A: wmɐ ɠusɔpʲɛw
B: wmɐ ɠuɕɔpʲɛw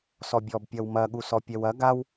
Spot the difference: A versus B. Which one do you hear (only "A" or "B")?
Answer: A